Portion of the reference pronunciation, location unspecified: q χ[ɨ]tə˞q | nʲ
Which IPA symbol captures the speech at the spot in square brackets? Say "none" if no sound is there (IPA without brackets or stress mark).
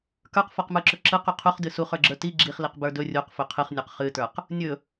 ɨ